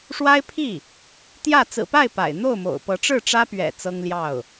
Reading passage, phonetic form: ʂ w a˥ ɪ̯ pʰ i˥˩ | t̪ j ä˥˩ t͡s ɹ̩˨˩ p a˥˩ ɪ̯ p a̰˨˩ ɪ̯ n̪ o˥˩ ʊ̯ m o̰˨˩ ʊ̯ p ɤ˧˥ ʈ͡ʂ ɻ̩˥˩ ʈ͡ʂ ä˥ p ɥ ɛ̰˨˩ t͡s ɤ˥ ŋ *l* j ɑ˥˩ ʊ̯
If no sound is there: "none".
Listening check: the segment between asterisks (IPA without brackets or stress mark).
l